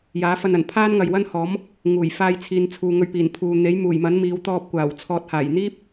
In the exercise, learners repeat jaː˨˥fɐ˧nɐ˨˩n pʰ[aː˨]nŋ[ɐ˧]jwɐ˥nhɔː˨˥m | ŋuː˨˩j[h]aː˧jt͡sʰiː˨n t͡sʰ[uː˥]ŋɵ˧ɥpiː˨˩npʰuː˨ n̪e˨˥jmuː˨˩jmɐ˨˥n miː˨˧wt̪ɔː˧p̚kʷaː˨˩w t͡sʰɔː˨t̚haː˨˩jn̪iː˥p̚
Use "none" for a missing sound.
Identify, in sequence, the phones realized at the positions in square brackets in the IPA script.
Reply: aː˥, ɐ˨, f, uː˨

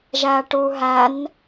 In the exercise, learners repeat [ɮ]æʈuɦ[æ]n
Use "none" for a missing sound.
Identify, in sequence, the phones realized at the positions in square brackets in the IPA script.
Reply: ʒ, æ

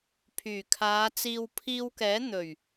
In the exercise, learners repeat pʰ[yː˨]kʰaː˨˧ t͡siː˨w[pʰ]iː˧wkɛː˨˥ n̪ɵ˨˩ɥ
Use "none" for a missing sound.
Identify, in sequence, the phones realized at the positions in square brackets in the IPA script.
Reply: yː˨˩, pʰ

